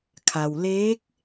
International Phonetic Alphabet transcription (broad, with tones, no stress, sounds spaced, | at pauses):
kʰ a˩ w l eː˧˥ k̚